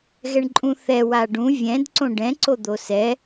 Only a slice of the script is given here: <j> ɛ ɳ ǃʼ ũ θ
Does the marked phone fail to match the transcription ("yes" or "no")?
yes